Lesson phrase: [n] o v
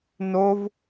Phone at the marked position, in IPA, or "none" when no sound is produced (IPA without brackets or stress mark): n